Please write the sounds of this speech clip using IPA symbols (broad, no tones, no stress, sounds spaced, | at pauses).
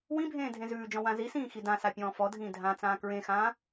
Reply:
w ĩ bʱ ẽː dʱ ẽ z ʉː d͡ʒ ɔ̃ w ã z i s ĩː x i d ã s a pʲ ɔ̃ː f ɔ dʱ ĩː dʱ ã t͡s ãː k ɹ ẽ x ãː